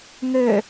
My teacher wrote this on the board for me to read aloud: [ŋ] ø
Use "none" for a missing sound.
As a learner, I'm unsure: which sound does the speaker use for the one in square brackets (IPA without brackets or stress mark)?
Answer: ŋ